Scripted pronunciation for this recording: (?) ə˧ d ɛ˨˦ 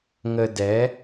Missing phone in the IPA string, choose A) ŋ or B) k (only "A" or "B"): A